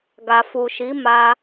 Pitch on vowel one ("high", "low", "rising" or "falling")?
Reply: low